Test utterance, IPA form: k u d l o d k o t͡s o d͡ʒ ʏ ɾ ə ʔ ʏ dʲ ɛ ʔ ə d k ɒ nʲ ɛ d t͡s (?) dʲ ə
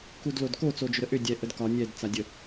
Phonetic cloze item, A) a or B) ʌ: A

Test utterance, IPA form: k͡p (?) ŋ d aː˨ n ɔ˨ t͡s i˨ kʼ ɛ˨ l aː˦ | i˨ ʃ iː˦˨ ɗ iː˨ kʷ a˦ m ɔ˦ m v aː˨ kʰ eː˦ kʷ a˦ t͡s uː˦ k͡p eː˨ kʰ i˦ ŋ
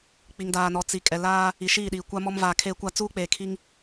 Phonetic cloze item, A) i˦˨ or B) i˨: B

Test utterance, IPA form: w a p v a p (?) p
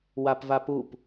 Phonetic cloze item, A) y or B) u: B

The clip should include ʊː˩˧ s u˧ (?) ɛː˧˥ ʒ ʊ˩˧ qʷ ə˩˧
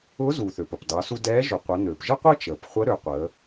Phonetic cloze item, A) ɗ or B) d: B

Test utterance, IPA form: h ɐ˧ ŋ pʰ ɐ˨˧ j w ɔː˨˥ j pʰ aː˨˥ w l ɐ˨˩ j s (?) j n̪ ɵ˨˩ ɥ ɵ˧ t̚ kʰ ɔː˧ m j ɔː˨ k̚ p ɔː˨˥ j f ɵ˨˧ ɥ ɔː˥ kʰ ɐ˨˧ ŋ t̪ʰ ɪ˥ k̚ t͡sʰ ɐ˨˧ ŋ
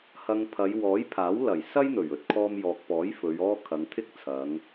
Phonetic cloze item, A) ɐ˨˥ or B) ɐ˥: B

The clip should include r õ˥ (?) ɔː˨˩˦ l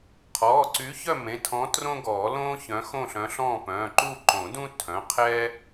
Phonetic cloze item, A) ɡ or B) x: A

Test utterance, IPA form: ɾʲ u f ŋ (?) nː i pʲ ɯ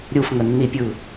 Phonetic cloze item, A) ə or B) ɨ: A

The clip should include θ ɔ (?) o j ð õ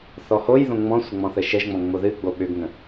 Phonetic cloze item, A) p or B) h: B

